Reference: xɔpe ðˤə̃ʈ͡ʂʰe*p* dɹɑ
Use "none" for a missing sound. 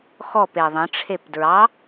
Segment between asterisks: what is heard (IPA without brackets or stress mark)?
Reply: p